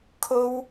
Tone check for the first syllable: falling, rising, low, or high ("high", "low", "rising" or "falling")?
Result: high